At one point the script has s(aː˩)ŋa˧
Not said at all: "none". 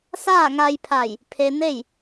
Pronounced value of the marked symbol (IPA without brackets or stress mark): aː˥˨